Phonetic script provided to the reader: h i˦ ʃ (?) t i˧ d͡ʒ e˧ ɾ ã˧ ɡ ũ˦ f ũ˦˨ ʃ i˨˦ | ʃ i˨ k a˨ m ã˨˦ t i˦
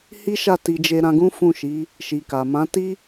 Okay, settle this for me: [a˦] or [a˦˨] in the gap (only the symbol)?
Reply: a˦˨